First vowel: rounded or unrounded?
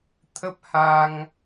unrounded